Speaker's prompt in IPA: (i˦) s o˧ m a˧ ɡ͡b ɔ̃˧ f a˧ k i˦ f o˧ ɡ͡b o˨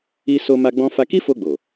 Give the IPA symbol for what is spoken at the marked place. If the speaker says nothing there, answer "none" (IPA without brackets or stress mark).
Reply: i˧